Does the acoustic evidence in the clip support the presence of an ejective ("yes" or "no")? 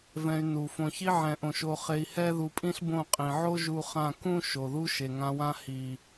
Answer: yes